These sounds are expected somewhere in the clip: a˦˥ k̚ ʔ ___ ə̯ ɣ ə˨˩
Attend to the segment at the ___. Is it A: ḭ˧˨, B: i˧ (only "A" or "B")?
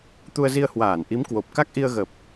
B